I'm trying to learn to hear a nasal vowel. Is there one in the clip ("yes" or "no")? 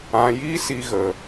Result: yes